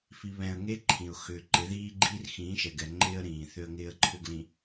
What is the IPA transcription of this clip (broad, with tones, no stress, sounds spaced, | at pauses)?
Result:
f i˨ β ɛ̃˨ ə̯ ŋ e˦ ǃʰ ĩ˨ ʊ̯ x ʏː˨ ǃ ɪ˨˦ ð iː˦ ɡ͡ǃ iː˦ r x ĩː˨˦ ʃ ɛ˨ ɡ ɛ˨ ŋ͡ǃ ɪː˦ ə̯ ɾ ĩː˨ θ ʏ˦ ə̯ ŋ ɪː˦ ə̯ ǃʰ ʏ˦ ɡ l ĩ˨